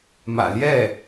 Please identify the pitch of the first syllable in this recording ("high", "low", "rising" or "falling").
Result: low